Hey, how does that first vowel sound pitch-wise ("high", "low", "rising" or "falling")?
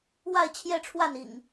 falling